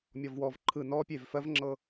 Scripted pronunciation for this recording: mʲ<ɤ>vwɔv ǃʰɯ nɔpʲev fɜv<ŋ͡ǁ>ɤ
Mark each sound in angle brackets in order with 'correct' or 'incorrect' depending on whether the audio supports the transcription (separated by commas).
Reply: incorrect, correct